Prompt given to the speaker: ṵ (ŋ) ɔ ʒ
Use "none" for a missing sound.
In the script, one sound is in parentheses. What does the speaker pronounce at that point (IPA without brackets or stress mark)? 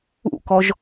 k